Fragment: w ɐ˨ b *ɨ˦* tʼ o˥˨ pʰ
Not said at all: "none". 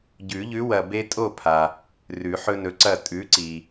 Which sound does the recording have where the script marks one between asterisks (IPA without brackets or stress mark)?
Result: e˦